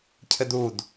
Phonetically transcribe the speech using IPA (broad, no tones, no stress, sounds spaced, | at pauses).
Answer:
cʰ ɘ d u d